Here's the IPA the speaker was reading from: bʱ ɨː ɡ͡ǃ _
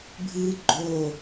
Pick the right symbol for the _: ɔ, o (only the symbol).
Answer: o